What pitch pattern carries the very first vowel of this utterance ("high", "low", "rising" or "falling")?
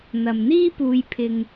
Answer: low